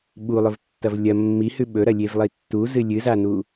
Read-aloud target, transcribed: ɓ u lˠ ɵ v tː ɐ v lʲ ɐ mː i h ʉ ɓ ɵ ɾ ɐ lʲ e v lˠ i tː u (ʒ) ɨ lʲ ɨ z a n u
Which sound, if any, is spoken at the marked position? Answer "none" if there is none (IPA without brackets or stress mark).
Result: z